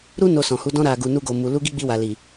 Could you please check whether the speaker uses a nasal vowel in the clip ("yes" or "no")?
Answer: yes